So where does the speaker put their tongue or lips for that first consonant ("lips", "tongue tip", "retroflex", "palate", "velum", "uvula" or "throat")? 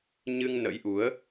palate